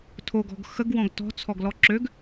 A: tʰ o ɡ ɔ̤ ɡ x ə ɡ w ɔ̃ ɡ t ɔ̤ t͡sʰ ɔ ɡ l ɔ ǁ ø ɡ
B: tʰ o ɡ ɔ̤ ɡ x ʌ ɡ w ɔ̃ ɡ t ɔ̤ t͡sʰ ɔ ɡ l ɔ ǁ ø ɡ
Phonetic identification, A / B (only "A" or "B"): A